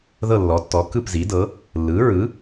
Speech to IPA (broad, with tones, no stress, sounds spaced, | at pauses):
ð ɤ˥˨ lː ɔ˩˥ tː ɔ˩˥ k ɯ˥˨ p z i˩˥ d ɤ˩˥ | lː ɯ˩˥ ɹ ɯ˩˥